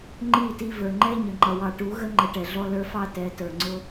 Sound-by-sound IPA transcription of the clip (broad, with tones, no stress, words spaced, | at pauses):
ŋ͡ǃi˦˨ti˧ və˞˨ŋ͡ǃɛ˦ ɲə˨ŋ͡ǃʌ˨wɑ˧ ʈu˨˦ɣə˦ ŋ͡ǃə˧ʈɛ˨ɮɔ˦ lə˞˦fɑ˦ tɛ˨˦tə˞˨ŋ͡ǀʊ˦